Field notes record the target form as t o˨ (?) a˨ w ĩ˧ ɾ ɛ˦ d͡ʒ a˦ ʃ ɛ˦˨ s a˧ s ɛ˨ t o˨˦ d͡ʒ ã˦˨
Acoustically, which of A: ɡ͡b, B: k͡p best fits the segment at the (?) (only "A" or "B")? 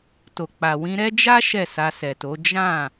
B